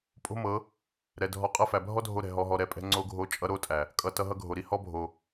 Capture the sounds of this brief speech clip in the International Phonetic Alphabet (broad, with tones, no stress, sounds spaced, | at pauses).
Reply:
pʼ o̤˦ m ɤ˨˦ | ɾ ɛ˨ dʱ ɔ˧ qʼ ɤ˧ f æ˨ bʱ ɔ˦ dʱ o˧ ɾ ɛ̤˨ ɦ ɔ˧ ɦ ɔ˧ ɾ ɛ˧ pʼ ɛ̤˦ ŋ͡ǀ o˦ ɡʱ o˦ t͡ʃʼ ʌ˦ ɾ o˦ tʼ æ˨ | kʼ ʌ˨ t ʌ˧ ɦ ʌ˧ ɡʱ o˨ ɾ i˦ h ɔ˦ bʱ o˨